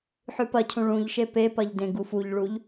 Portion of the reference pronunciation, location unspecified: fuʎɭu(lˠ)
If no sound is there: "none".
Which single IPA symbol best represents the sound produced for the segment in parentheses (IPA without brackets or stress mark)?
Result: ʎ